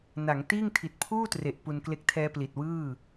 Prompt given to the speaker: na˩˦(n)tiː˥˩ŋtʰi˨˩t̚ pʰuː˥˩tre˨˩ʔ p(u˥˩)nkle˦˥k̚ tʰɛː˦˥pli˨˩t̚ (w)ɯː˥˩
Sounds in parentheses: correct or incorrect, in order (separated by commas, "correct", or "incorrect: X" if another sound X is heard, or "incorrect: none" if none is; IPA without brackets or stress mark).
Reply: incorrect: ŋ, incorrect: u˧, correct